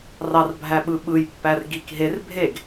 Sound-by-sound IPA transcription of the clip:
rɑrbʱæɓɯ ɓɯjpːær ɡik ɦer bʱeɡ

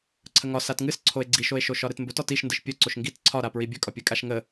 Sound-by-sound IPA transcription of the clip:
ǀʰəŋɒ satŋɨs ǀʰoe̯ɡ͡ǀiʃoe̯ʃo ʃɒɾɨtmbɵt ɒtiʃ ndɨʃpʲɵǀoʃ ŋɡit ǀʰɒɾa pɹibʲɵkʼɒ pʲɨkʼaʃŋə

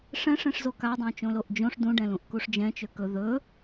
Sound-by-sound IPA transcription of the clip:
ʂɛ̃ʂẽʂzo kadˤõt͡ʃõloʔ d͡ʒõʂ dũɖɛ̃lũʔkuʂ d͡ʒɛ̃t͡ʃø kɵ ðɵ

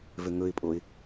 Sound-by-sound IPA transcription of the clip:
vøŋɵɪ̯pʼoɪ̯

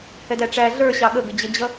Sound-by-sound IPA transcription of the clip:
hɛdæʈ͡ʂæ ɮə˞ ɕɑɠəɡə d͡ʑəd͡ʑʌ

